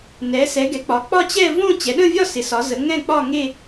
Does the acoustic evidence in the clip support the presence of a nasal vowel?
yes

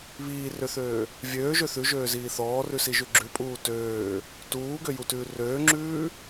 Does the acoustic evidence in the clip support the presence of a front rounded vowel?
yes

